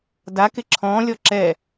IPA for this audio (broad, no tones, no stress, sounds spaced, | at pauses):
d a k ɪ ǁʰ ɔ̃ lʲ ɔ ǁ ɛ